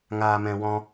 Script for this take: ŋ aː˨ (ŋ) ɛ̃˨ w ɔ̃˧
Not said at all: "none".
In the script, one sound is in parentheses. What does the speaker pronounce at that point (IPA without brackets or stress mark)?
m